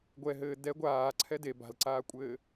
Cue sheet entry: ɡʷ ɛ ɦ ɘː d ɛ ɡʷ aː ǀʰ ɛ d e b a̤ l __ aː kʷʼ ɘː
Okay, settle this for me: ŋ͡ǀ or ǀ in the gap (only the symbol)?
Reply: ǀ